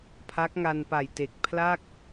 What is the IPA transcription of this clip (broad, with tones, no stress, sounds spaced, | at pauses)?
pʰ a˦˥ k̚ ŋ a˧ n p a˨˩ j t e˨˩ k̚ pʰ l a˥˩ k̚